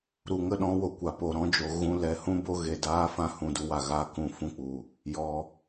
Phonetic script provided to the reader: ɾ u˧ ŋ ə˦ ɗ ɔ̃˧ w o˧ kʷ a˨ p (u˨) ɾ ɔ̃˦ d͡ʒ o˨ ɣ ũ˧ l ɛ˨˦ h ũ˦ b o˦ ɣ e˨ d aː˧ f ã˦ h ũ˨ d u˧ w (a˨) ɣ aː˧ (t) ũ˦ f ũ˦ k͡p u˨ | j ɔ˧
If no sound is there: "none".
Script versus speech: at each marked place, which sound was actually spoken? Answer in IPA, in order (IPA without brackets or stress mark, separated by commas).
o˨, a˨, k